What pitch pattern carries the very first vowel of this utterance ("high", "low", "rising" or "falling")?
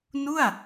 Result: falling